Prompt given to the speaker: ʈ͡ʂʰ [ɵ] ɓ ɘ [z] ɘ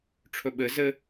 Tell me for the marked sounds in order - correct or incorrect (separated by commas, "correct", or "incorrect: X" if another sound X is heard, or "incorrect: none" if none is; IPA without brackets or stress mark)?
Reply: correct, correct